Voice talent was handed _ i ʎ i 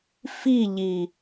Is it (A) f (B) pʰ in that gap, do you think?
A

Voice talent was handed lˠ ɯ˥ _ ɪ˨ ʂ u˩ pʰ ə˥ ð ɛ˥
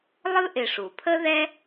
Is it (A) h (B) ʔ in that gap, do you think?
B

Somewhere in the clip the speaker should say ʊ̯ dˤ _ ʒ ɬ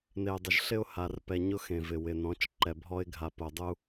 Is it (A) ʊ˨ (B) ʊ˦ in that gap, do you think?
A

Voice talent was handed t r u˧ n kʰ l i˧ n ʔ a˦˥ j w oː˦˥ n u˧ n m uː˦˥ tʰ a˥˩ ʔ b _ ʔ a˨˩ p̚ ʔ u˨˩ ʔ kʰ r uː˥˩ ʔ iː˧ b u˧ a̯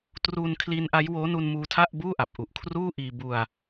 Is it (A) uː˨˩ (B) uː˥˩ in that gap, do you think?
B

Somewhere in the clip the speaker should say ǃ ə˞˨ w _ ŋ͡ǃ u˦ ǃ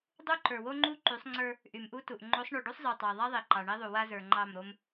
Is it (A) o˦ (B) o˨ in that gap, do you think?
A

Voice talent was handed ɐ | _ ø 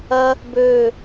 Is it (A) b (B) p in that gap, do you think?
A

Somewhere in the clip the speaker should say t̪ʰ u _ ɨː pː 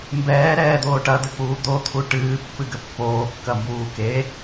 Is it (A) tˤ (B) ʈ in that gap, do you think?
B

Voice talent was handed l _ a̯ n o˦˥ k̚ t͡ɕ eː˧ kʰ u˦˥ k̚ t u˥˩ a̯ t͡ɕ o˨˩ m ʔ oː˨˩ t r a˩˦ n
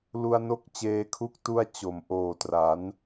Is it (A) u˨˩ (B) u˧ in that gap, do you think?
B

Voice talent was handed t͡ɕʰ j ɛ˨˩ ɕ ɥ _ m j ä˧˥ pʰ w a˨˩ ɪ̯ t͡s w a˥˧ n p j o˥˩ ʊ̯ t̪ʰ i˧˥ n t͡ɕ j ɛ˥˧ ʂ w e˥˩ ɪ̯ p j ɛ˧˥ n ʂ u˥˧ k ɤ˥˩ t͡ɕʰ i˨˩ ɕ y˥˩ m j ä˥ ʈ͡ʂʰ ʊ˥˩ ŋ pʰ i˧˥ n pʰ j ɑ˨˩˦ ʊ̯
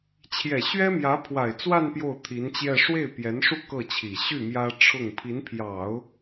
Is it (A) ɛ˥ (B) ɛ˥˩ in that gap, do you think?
A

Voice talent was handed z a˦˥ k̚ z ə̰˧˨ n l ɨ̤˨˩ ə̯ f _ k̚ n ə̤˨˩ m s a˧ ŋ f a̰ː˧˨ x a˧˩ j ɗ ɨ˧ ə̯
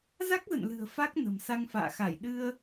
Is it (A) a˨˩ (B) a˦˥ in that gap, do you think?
B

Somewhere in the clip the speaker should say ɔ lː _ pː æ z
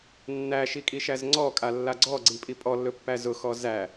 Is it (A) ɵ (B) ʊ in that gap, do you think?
A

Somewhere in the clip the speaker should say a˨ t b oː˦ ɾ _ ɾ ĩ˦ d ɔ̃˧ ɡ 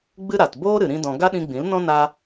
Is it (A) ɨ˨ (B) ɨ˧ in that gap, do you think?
A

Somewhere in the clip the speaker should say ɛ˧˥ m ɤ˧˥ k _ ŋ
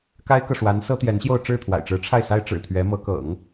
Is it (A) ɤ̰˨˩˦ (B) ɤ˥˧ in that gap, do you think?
A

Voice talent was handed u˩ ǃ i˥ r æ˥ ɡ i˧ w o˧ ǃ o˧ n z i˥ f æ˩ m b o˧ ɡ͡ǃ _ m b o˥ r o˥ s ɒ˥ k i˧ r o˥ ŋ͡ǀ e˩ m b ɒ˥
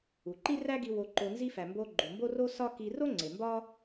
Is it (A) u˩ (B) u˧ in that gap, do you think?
A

